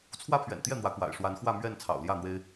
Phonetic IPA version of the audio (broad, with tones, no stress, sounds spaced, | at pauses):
t͡sʰ w ä˦ pʰ ɥ ɛ̰˨˩ n t̪ j ɛ˥˨ n̪ w ä˨˦ k w a̰˨˩ ɪ̯ ʂ w a˨˦ n x w ä˥˨ m ɥ ɛ˥˨ n t͡sʰ ɑ̰˨˩ ʊ̯ l j ä˥˨ n̪ w e˦ ɪ̯